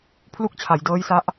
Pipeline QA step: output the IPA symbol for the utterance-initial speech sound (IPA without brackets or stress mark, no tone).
pʰ